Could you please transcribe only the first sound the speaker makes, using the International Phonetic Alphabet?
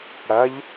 ɽ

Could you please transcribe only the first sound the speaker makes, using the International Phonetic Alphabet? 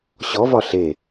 ɕ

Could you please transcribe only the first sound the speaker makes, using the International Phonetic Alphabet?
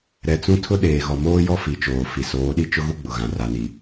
ɾ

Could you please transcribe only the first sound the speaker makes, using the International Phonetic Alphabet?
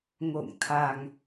ŋ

